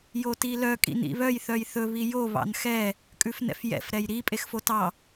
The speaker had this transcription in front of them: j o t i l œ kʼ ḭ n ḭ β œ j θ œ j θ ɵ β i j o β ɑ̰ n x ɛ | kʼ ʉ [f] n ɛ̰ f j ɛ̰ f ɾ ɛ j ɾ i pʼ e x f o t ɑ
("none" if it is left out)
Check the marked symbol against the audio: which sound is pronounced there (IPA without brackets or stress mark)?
f